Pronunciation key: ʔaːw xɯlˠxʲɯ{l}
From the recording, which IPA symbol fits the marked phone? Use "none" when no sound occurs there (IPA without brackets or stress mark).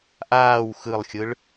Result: ɭ